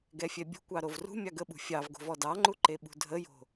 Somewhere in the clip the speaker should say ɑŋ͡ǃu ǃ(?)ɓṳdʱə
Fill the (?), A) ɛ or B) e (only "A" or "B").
B